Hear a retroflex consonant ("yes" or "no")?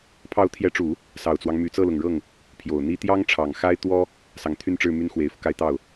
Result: yes